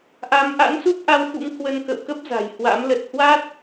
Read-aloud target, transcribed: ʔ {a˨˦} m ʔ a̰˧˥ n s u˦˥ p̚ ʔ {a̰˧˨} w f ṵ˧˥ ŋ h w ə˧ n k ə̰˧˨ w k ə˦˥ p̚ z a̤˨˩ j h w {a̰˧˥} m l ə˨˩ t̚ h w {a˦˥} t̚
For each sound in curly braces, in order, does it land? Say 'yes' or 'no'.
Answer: yes, no, yes, yes

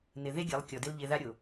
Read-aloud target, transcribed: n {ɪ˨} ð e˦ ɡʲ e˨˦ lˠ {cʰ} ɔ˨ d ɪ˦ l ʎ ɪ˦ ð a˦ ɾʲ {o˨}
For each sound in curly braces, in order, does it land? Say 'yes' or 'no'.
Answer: yes, no, yes

